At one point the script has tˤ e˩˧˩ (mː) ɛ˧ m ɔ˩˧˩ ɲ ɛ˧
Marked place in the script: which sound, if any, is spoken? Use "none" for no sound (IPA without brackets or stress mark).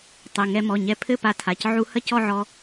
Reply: ŋ